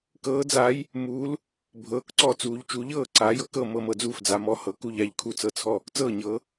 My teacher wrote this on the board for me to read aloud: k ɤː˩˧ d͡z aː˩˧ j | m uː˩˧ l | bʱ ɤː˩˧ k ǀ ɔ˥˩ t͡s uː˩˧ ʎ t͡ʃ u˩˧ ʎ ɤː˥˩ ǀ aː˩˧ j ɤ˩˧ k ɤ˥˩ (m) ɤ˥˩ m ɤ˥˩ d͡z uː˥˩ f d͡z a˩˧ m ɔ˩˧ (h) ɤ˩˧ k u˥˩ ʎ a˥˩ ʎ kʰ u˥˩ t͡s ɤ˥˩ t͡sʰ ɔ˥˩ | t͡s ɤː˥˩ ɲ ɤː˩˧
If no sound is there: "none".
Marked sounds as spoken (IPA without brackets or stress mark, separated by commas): m, h